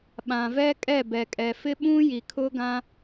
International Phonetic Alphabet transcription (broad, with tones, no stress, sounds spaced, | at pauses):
ɓ ã˨ v ɛ˦ kʼ ɛ˦˨ b ɛ˨ kʼ ɛ˨ f ɪ˦ ɓ ũ˦ j i˨ kʰ ʊ˦ ɡ ã˦